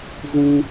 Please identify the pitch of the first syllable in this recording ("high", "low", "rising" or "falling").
high